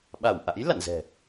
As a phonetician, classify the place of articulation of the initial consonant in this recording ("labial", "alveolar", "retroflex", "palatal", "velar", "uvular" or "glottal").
labial